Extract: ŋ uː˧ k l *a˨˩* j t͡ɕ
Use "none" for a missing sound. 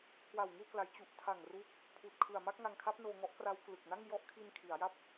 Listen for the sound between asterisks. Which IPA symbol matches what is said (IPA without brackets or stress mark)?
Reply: a˩˦